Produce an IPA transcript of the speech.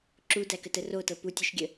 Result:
ǁ u d æ k ə t ə r o t ɤ p u tʲ œ ʃ ɡʲ ə

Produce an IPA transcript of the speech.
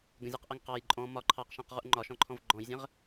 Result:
ɡ ə̃ zʲ æ q ʔ ɜ ŋ q ɑ j ǃʼ ɔ̃ m ɒ ǃʰ ɑ q ʃ æ̃ q ʁ u ʔ ŋ͡ǃ ɒ ʃ ɔ̃ ǃʰ ɔ̃ v ɡ͡ǃ ɔ̃ j zʲ ə̃ ʁ

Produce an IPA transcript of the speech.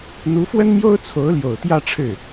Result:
n̪ u˧˥ f w ə˥ n m j o˥ ʊ̯ t͡sʰ o˧˥ ʊ̯ l j o˨˩ ʊ̯ t̪ j ä˥˧ ʈ͡ʂʰ ɻ̩˥˩

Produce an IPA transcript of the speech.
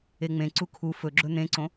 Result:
e ŋ͡m ẽ ǀ u kʰ u f ɵ ɡ͡ǁ ɵ n̪ ẽ ǀ õ

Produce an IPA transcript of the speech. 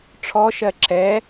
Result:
ʈ͡ʂʰ ɔ ʃ ɜ ǁ ɛ

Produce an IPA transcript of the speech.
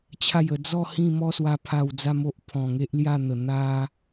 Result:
t͡ɕʰ a˨˩ j ə˨˩ d͡z ɔ˥˧ h ĩ˥˧ m ɔ˦ s w a˧ pʰ a˨˩ w d͡z a˧ m o˦ ʔ pʰ ɔ̃˨˩ ŋ e˦ ʔ l j a˥˧ n̪ ə˨˩ n̪ a˧

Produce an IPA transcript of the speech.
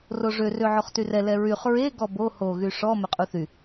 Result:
r o ʐ ø r ø ʕ o χ t y r ɛ l ɛ ɹ y χ ɹ e ɡ ɔ b o h o ɣ y ʂ ɔ m ø qʼ u θ y

